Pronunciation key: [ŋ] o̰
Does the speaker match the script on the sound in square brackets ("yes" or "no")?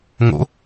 yes